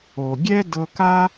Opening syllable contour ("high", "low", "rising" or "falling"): low